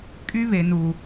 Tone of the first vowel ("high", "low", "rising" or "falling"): high